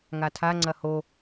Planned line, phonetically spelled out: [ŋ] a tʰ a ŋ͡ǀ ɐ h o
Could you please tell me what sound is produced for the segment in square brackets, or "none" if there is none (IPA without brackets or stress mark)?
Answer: ŋ